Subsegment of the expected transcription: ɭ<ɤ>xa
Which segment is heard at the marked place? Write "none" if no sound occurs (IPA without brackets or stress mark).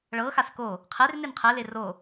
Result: ɤ